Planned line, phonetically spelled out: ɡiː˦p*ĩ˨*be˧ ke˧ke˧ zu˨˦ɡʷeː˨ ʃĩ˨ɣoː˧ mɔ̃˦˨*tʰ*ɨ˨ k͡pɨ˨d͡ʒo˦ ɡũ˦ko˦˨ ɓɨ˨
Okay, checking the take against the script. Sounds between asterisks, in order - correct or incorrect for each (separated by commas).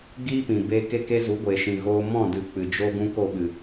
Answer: correct, incorrect